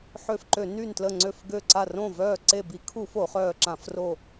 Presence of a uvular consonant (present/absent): present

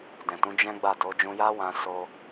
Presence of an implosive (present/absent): absent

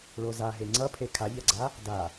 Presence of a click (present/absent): present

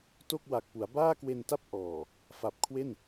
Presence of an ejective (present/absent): absent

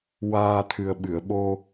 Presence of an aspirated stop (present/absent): present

